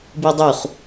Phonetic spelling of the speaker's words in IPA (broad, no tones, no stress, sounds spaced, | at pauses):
b i dˤ u χ